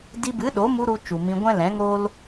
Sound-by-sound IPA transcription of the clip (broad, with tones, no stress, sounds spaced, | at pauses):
d i˧ b ɨ˨˦ ɗ o˨˦ m u˧ ɾ u˧ t͡ʃ u˨ m ĩ˧ ɡʷ ɛ̃˦ l ɛ̃˨˦ ŋ o˦ l